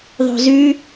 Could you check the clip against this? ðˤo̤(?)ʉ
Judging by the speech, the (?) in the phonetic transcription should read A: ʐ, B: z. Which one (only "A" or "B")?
B